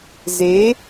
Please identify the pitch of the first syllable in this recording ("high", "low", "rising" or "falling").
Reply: rising